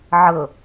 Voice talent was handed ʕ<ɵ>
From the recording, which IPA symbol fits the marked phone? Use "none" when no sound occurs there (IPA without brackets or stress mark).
ɤ